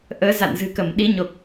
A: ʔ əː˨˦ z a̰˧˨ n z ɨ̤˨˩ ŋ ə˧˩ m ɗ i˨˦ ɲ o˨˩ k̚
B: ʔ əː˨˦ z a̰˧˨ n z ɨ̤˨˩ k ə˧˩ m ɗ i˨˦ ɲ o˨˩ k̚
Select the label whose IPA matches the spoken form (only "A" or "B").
B